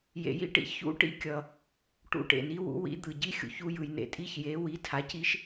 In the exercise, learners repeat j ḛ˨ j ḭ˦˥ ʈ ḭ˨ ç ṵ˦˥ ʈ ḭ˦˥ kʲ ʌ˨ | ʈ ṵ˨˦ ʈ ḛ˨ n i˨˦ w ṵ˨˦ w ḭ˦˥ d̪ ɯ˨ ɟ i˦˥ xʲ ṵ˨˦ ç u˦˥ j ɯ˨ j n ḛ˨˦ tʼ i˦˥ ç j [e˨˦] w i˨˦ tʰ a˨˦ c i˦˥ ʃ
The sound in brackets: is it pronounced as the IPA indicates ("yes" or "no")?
yes